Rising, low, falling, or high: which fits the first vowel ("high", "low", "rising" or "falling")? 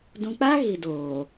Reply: low